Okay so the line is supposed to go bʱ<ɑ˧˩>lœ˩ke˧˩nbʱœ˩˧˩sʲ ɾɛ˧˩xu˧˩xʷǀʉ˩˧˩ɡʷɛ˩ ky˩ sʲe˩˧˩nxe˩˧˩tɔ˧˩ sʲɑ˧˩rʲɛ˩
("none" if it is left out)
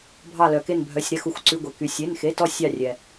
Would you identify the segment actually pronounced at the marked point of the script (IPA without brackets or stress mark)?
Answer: ɑ˧˩